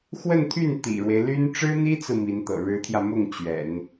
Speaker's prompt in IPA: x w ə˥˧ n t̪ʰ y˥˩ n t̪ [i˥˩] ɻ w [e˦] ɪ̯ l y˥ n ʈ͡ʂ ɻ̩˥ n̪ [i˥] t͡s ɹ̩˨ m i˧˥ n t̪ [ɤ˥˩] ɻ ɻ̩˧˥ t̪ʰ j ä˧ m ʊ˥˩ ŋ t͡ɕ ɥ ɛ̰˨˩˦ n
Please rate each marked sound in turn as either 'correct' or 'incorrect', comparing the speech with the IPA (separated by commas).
incorrect, correct, correct, incorrect